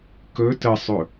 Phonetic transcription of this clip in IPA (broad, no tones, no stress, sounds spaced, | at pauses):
k ɵ t ə sˤ ɵ